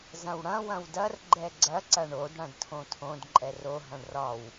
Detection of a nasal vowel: present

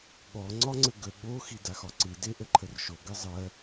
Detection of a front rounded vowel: absent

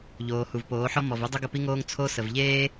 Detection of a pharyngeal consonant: present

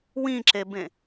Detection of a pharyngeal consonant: absent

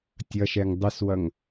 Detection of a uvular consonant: absent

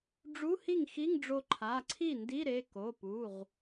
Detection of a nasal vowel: absent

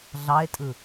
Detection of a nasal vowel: absent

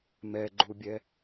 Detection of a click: present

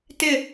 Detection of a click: absent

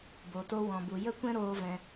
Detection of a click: absent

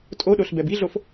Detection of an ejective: present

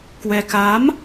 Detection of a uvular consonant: absent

